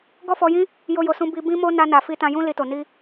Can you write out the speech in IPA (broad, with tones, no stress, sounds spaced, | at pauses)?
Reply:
ɡ ɔ˦ f ɔ˧ j ĩ˦ | j o˦ j o˧ s ũ˦ b i˧ b ĩ˦ m o˦ n a˧ n a˨ f i˧ t ã˧ j ũ˦ l i˧ t o˨ n i˧